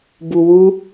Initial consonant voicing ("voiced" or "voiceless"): voiced